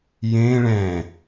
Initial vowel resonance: nasal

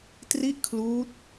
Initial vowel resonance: oral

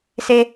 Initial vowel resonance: oral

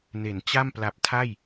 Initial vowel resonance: oral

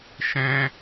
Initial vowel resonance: nasal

